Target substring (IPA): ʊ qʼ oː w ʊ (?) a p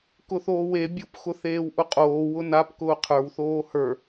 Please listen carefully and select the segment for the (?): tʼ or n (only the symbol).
n